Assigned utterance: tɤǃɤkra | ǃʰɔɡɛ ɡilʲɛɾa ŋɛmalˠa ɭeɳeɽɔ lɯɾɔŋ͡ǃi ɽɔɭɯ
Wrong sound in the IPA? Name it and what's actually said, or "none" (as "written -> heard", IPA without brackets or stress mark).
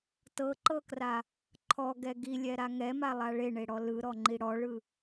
none